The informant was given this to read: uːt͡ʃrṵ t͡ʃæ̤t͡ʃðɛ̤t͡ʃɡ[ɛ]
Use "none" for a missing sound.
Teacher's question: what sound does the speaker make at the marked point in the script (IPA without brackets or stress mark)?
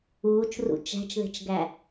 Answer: æ